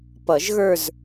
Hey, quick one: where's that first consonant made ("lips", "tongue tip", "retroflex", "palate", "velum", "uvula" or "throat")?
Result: lips